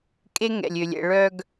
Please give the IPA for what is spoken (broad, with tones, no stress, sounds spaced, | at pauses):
kʼ e˦ ŋ ɛ̰˨ lʲ ø˨ lʲ ɛ̰˨ ɭ œ˨ ɡ